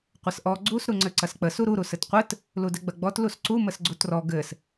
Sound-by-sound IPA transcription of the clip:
qʷ ɘ s ʔ ɔ ɡ͡ǀ u s ɾ u ŋ͡ǀ ɘ ǀ ɐ s k͡p ə s u ɾ u ɾ u s ɘ t qʷ ɘ t | l u d ɘ ɡ͡b ɐ ɡ͡b ɔ t l u s ǀ u m ə s ɡ͡ǀ u t r ɔ ɡ ɘ s

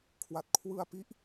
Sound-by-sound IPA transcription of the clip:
kʰ w a˨˩ t̚ kʰ w ɯ˧ a̯ p i˦˥ ʔ

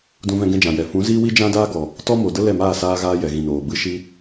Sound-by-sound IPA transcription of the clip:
d ũ˧ v ɛ̃˧ ɡ ɛ̃˧ d͡ʒ ã˨ j ɛ˨ f ũ˨˦ z iː˦ w i˦ d͡ʒ ã˦ d aː˦ ɡ ɔ˨ | t ɔ˦ m o˨ d ə˦ l ɛ˦˨ m aː˦˨ s aː˧ ɣ aː˧ j ɛ˨ ɣ ĩ˨ n oː˨ b ɨ˧ ʃ i˧

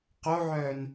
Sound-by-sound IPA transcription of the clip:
q o ʕ œː n

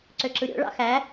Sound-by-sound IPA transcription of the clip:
ǀ ø ǁ ɯ ɾʲ o̰ ɭ ɑ̰ x æ

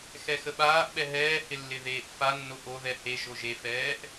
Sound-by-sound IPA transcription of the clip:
x ɛ x ə ɓ aː ʔ ɓ ɛ ɦ ɛː h ɪ lː ɪ ð eː ʔ f a nː o ʔ o ð ɛ h e ʒ o ʒ e f ɛː ʔ

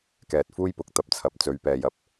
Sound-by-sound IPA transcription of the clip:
k ɛː˨ t̚ f uː˥ j p ʊ˨ k̚ t̪ ɐ˧ p̚ t͡sʰ ɐ˨ p̚ t͡s ɵ˨˧ ɥ p ɛː˨ j ɐ˨ p̚

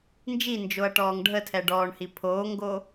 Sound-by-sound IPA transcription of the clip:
n d͡ʒ i n d͡ʒ o ɐ̯ ʈ ɔː ŋ ɖʱ ə tʰ ɛ ɖ ɔː ɳ h i pʰ oː ŋ ɡ o

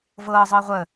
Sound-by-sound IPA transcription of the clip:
v ɤː zˤ ɤː ʁʷ ə

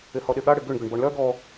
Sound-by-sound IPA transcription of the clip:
ɪ h ɔ ɗ ɪ ɠ a ɽ ɪ ɡ ʏ ɳ ɡ ʏ ɳ b ɔ ɳ l œ ɡ ɔ

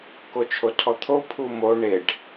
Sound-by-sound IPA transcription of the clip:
k o t͡ʃʰ o tʰ ɔ t̪ʰ o pʰ u m o ɳ e ɖ

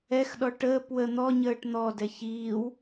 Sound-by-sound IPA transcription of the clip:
ɛ x ɗ ɔ ʈ əː p w ə n̪ ɔ ɲ əː ʈ n̪ ɔ d ɛ ç iː w

